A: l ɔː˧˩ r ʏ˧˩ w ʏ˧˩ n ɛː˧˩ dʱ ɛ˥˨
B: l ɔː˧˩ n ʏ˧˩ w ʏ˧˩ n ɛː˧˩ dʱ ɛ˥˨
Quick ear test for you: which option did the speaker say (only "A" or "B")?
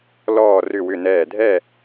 A